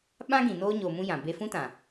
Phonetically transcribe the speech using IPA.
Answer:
ɓ ã˦ ɡ ĩ˨ n oː˦ ɲ oː˧ m ũ˦ j ã˨ b e˧ f ũ˦ t ã˨

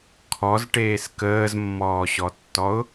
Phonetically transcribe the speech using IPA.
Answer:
kʰ ɔ z ʈ eː s k əː z mː ɔː ɕ ɔ tː ɔ ʊ̯

